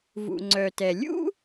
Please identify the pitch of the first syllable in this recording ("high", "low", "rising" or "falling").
low